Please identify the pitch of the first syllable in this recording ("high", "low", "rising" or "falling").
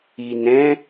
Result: low